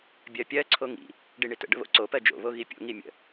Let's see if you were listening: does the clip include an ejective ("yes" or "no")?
no